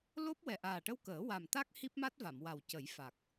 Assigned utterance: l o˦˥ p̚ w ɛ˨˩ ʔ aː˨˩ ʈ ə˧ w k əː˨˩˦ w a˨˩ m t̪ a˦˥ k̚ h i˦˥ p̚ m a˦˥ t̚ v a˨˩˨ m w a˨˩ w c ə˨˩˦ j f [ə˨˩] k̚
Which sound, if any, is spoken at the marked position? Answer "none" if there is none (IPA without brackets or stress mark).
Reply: a˨˩